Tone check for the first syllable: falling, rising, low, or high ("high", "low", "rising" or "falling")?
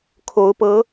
rising